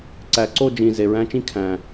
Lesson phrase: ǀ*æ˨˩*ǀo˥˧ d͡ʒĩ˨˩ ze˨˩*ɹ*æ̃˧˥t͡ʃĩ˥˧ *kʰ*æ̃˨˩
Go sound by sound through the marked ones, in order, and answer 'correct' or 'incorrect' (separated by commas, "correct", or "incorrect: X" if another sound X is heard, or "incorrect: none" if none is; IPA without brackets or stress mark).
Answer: correct, correct, correct